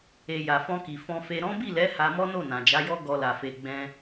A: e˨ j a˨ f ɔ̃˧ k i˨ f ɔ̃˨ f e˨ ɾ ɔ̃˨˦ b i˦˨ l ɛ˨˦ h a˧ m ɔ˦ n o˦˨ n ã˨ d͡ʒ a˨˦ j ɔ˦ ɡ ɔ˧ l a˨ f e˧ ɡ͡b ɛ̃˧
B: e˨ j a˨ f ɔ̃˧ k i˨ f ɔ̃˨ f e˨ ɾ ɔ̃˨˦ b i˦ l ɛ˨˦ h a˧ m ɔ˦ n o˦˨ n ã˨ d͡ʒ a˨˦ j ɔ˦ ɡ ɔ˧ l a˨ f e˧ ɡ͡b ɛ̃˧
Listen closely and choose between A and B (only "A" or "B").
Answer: A